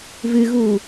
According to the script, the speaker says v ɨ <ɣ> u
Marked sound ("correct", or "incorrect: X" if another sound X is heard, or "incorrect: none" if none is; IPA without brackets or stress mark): correct